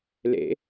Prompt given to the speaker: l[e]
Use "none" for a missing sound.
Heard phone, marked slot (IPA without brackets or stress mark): ḛ